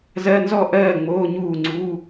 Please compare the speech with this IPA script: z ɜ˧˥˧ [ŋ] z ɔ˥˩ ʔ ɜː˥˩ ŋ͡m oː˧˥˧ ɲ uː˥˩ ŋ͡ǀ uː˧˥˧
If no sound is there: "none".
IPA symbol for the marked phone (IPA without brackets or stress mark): n